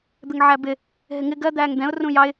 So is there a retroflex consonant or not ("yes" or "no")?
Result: no